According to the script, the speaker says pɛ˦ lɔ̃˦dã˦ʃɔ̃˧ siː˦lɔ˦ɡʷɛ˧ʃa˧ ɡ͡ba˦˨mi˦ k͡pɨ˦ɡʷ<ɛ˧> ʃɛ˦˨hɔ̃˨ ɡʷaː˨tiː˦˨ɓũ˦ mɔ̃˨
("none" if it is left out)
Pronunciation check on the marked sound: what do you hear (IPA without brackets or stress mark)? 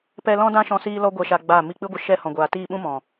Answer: ə˧